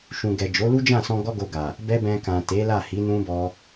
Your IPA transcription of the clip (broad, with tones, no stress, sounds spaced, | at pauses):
ʃ ũ˨ ɡ ɛ˨ d͡ʒ o˨˦ l u˦ d͡ʒ ã˦˨ s ɔ̃˧ ɡ ɔ˦ ɡ o˧ ɡ a˨ | b ɛ˦ b ɛ̃˧ k ã˨ t e˨˦ l a˦˨ h i˨˦ n ũ˦ b ɔ˦